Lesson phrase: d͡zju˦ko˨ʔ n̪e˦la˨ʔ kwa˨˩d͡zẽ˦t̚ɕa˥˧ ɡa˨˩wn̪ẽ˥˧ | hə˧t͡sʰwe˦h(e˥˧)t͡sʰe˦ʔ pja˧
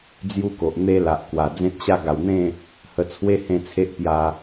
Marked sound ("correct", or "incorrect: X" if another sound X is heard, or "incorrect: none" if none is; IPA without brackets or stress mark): incorrect: ẽ˥˧